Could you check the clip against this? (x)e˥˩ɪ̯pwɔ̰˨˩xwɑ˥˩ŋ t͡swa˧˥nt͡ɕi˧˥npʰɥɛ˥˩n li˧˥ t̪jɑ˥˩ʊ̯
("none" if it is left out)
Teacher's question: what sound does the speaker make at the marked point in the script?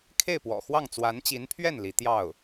kʰ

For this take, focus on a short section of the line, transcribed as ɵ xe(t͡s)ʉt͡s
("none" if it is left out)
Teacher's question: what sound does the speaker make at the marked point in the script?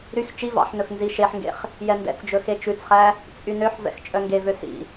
t͡ʃ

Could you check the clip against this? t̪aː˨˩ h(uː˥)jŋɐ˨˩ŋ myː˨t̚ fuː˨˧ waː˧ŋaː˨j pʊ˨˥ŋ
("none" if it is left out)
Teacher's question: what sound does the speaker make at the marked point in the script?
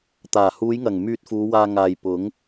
uː˨˧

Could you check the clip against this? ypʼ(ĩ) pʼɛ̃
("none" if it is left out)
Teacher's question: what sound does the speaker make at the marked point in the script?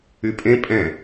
ẽ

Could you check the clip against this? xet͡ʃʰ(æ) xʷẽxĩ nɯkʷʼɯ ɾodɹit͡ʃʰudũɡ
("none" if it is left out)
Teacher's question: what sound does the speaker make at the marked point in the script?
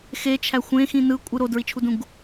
æ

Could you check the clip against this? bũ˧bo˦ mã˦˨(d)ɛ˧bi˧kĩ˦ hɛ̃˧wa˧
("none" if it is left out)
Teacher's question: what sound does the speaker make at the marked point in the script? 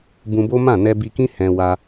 n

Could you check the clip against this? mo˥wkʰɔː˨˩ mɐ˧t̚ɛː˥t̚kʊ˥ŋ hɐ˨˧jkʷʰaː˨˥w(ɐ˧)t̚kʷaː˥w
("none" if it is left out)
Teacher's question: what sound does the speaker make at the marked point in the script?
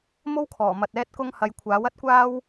ɐ˥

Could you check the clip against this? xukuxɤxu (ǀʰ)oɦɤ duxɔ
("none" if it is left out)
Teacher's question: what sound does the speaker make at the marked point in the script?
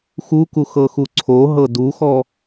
ǀʰ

